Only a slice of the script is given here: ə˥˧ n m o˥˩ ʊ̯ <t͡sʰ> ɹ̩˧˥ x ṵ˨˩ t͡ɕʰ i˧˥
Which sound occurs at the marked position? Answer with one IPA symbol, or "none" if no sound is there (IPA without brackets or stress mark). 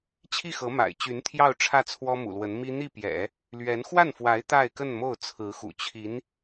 t͡sʰ